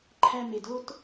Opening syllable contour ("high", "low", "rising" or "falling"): high